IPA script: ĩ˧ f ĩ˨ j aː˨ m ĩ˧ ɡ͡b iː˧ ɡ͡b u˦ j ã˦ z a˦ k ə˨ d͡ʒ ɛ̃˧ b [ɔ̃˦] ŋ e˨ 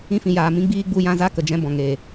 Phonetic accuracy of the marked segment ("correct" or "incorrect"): incorrect